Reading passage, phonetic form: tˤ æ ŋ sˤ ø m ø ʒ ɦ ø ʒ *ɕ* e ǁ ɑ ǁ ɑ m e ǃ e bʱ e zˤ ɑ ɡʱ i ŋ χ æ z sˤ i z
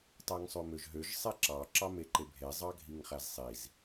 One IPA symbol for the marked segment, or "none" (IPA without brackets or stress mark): sˤ